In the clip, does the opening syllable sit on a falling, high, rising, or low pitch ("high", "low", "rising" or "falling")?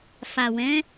low